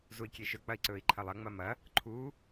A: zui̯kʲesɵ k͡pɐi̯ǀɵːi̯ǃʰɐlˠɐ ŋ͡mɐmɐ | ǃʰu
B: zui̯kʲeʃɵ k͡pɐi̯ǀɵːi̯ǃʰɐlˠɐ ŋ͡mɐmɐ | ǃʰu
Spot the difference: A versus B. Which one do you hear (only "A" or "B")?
B